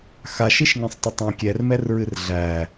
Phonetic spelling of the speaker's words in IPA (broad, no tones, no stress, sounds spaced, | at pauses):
x a ʃ i ʃ ŋ ɛ̃ sˤ tˤ ə tˤ æ̃ kʲ ɛ r m ɛ r ɹ ɨ r ɮ æ